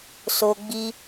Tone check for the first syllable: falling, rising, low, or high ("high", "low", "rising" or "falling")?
high